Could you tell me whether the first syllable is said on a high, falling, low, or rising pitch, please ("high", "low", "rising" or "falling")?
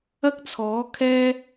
high